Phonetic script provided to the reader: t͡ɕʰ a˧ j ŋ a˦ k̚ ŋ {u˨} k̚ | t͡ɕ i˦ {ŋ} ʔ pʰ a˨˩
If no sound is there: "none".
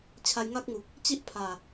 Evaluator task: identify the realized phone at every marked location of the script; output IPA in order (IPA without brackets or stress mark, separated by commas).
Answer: u˨, none